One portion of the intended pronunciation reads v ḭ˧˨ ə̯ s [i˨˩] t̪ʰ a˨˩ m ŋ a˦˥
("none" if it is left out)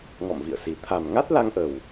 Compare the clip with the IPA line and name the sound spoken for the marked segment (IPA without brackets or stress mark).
i˨˩